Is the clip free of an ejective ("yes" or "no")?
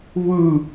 yes